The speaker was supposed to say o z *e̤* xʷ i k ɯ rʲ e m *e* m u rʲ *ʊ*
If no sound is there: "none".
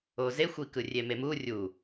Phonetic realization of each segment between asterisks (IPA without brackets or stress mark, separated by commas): e, e, u